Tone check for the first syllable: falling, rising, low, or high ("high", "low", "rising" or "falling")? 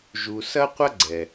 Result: low